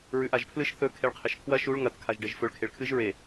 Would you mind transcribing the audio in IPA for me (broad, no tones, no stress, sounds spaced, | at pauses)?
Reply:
ɹ ʉ ʔ a ʒ pʰ l ɨ ʃ θ ɵ kʰ e ɭ qʰ e ʃ kʰ w ɐ ʃ u ɭ ŋ ɐ t kʰ a ʒ ɖ e ʒ f ɵ ɭ kʰ e ɭ kʰ ɨ ʒ ɹ e